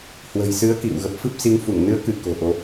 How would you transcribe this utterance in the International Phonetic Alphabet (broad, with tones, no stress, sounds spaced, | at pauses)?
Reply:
h w ə̤˨˩ j s ɨ˨˦ ə̯ k ḭ˧˨ w ɣ ə˨˩ p̚ f ɨ˦˥ p̚ s i˨˦ ŋ f u˧˩ ŋ n ɨ˨˦ ə̯ k ɨ˧˩ k o̤˨˩ ʔ o˨˦